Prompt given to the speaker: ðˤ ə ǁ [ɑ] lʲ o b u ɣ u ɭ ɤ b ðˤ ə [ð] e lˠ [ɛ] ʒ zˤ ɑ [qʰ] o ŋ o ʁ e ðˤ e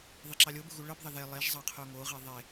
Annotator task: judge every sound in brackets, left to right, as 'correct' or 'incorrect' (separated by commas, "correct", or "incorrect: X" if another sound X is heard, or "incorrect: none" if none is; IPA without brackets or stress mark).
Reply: correct, correct, incorrect: e, correct